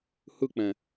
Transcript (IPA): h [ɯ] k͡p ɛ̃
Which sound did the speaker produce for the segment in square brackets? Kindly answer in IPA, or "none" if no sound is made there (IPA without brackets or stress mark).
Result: ɯ